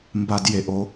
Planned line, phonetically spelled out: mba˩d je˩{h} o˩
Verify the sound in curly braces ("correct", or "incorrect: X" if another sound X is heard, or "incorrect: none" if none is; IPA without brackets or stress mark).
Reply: incorrect: ʔ